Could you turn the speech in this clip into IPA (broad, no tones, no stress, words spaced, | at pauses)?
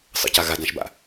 sˤə̰ca ɣadãʃba̰